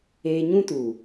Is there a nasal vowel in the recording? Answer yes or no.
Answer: yes